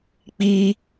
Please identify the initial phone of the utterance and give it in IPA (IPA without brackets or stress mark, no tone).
k͡p